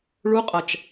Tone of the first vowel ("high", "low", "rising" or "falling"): rising